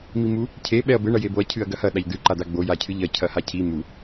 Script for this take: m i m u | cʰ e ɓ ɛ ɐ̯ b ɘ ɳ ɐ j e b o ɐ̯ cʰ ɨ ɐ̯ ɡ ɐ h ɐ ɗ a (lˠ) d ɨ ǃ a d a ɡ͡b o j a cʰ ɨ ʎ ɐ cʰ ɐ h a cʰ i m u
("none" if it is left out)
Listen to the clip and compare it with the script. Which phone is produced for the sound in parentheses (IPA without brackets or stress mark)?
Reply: ʎ